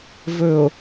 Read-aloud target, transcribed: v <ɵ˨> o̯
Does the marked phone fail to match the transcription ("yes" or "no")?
no